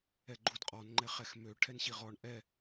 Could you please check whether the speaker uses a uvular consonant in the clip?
yes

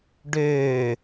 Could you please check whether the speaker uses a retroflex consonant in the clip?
yes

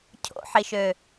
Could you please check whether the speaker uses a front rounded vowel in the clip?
yes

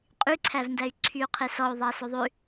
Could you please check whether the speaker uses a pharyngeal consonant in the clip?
no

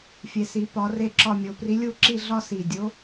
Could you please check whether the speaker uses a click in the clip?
yes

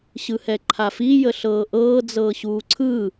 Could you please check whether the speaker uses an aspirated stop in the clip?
yes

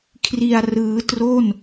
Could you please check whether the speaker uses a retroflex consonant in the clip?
no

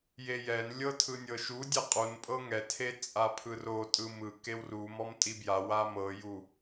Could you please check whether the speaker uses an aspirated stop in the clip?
yes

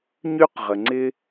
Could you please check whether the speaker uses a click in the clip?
yes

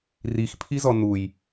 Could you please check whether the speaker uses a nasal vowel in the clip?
no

